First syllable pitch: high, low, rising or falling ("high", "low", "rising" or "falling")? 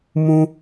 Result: high